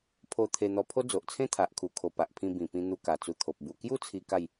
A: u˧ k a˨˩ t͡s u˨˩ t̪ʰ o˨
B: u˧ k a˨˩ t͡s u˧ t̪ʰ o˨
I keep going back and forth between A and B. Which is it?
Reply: B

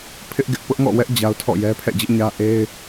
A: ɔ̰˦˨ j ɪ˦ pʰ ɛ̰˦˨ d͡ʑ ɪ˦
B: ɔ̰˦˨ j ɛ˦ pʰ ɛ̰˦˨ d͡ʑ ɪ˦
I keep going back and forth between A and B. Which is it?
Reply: B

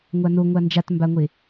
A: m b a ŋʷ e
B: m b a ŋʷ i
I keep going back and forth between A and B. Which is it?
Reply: A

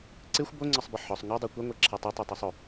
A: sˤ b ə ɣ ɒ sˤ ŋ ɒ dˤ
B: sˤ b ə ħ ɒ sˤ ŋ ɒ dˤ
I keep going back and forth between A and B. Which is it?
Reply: B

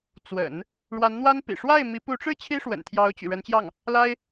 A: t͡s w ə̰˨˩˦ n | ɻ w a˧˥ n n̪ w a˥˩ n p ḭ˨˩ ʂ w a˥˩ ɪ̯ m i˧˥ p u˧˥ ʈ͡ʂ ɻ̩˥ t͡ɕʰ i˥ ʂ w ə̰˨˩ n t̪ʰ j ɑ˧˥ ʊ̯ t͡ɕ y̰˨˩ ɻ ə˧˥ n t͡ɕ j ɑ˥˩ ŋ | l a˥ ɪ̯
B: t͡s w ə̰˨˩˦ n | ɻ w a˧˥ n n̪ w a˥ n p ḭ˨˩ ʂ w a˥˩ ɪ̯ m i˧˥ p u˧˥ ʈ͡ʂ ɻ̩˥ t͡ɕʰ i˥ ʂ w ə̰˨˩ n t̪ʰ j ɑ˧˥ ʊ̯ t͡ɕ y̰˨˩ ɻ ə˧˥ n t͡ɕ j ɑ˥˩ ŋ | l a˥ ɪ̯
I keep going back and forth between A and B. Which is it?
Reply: B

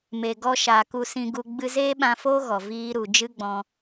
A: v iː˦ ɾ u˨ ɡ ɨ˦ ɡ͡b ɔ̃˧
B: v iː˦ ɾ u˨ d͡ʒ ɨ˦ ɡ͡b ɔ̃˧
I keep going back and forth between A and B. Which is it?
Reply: B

